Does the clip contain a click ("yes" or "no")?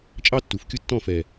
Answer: no